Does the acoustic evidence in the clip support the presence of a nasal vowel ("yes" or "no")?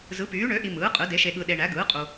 no